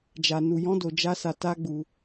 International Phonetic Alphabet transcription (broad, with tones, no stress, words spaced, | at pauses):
d͡ʒa˧nu˧jɔ̃˦do˧ d͡ʒa˦sa˧ ta˦ɡ͡bu˧